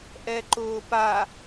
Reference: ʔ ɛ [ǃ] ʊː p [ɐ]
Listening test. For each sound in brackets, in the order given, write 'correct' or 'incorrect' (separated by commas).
correct, incorrect